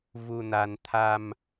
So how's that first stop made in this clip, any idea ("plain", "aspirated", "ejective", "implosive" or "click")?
aspirated